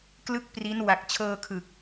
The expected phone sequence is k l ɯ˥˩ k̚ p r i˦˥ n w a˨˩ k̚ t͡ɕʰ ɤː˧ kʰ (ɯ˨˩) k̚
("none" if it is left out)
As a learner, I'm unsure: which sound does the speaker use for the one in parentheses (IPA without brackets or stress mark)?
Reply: ɯ˨˩